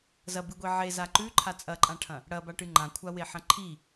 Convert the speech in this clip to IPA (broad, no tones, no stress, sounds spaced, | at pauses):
z ɐ b ɨ ɡʷ i ʕ e z a ǃ ʉ ǃʰ a t͡sʼ ɐ ǃʼ ã ʈʰ ɐ̃ | ɽ ɐ b a ʈ ɨ ŋ͡ǃ ã kʷʰ a w e ħ ɐ̃ ǃʰ i